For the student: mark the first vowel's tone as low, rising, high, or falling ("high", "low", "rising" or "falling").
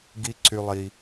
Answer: high